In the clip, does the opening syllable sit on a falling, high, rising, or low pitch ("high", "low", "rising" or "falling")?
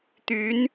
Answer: rising